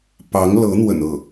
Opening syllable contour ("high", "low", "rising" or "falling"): rising